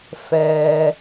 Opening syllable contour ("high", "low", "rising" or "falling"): low